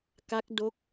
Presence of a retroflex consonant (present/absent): absent